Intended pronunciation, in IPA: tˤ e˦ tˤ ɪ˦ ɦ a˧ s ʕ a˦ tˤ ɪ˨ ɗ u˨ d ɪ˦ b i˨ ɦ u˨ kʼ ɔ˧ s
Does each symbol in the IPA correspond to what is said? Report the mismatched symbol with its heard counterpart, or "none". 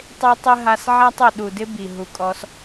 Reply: none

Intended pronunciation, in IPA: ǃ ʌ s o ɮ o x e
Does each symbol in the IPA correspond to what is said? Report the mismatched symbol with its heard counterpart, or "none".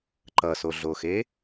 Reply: none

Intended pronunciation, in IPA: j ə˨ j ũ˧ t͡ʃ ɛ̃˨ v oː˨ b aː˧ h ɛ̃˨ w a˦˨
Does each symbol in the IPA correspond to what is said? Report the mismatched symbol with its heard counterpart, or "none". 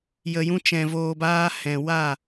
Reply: none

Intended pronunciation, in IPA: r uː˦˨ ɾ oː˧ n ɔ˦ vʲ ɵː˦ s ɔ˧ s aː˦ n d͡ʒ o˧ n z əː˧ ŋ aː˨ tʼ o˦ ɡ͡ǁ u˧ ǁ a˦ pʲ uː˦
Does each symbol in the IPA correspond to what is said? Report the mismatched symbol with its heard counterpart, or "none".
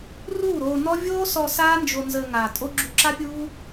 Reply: ɵː˦ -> oː˦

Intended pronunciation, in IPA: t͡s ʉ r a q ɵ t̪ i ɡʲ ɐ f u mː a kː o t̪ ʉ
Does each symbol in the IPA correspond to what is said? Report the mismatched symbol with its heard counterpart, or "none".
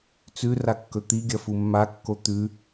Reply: q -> kː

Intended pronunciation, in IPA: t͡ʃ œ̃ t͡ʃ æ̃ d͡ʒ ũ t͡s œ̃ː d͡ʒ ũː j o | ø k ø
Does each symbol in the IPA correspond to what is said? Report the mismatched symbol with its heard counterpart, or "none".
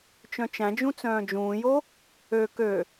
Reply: none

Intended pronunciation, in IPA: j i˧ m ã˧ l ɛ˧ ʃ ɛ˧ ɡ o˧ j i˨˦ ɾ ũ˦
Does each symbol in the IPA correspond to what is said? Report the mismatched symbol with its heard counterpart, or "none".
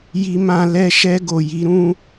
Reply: o˧ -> o˨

